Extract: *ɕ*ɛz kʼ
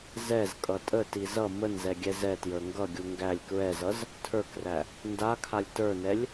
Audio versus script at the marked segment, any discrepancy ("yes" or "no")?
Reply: yes